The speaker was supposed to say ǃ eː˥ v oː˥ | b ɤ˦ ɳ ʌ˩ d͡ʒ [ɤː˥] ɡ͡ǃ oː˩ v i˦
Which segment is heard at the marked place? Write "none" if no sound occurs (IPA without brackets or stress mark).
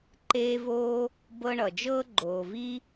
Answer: ɤː˥